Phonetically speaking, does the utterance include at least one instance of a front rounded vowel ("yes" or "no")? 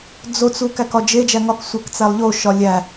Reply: no